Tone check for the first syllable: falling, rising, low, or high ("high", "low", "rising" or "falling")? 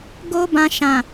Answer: high